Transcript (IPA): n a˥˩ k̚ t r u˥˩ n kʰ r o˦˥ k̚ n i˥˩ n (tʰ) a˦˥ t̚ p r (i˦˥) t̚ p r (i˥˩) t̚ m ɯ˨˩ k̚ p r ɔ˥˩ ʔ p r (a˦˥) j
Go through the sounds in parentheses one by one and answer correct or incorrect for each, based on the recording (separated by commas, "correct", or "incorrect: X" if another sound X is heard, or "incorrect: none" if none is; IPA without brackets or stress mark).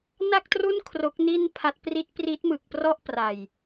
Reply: incorrect: pʰ, correct, incorrect: i˦˥, incorrect: a˨˩